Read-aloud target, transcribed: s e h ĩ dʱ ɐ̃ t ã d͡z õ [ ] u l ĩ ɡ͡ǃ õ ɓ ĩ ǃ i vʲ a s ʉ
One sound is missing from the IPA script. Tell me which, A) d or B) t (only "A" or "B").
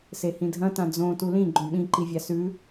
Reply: B